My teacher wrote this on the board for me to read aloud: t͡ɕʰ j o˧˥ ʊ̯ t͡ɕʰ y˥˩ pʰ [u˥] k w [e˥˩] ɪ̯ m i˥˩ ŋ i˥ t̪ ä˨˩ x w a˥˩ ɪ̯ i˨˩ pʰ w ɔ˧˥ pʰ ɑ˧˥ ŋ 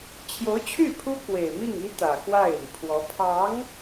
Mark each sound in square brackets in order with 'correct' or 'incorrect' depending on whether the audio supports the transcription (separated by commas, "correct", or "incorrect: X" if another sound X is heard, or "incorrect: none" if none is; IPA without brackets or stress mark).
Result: correct, incorrect: e˨˩